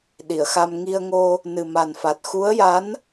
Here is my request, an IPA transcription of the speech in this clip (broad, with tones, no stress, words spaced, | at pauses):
ɗi˨˩˨ə̯xa˧m ŋi˧ə̯ŋo˧ | nɨ˨˩ma˨˩nfa˨˩t̚ xu˧˥ə̯ja˧˥n